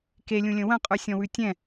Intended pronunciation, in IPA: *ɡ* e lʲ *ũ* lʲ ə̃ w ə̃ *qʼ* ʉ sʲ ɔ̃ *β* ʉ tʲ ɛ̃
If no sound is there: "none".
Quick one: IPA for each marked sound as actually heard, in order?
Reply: k, ũ, qʼ, w

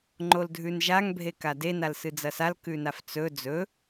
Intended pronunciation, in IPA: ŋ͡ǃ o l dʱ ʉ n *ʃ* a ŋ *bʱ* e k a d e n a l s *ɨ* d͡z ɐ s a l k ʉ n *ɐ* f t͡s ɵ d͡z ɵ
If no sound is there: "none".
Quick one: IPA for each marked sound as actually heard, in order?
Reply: ʒ, bʱ, ɨ, a

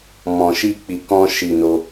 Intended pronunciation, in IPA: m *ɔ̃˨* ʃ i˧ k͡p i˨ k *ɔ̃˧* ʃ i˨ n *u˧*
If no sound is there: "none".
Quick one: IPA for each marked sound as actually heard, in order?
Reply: ɔ̃˨, ɔ̃˧, o˧

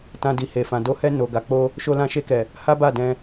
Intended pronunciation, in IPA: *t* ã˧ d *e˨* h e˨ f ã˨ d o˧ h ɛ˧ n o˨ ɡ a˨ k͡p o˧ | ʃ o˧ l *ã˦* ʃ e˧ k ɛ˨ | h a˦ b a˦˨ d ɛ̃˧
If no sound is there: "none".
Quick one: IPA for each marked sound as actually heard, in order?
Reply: t, i˨, ã˧

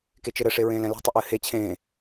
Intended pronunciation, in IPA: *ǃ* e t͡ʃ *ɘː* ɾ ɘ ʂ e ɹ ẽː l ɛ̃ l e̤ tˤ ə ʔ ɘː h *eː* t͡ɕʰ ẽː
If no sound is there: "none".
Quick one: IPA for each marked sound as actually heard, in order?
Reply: k, ɘ, e

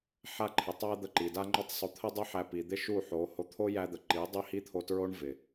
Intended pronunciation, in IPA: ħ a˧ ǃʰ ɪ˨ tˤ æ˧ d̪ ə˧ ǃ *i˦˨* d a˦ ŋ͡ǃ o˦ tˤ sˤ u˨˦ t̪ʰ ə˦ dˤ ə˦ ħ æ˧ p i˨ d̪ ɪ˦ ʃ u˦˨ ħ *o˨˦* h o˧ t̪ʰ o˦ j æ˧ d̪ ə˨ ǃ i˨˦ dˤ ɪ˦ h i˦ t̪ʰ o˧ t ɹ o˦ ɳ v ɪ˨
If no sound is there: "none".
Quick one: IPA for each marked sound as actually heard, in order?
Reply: i˨, o˨˦

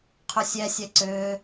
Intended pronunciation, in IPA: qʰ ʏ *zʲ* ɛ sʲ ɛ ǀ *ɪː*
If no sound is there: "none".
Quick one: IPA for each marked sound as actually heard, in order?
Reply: sʲ, ʏː

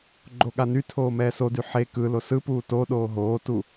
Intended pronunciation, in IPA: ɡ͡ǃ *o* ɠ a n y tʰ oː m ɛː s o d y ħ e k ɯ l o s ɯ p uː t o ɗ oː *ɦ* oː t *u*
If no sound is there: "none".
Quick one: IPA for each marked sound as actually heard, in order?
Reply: o, ɦ, u

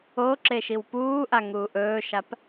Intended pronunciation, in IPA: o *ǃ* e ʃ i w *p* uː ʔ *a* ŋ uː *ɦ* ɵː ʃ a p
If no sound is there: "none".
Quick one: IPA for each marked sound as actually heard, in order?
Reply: ǁ, p, a, ʔ

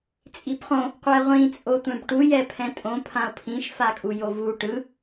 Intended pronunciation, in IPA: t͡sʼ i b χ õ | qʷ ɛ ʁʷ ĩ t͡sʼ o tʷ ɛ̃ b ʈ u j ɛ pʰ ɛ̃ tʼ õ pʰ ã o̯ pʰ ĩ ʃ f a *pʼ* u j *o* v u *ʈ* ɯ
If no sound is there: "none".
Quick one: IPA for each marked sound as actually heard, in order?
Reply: kʼ, o, ʈ

